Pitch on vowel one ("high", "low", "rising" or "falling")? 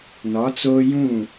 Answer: rising